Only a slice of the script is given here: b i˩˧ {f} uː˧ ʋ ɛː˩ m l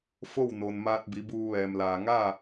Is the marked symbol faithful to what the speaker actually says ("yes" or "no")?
no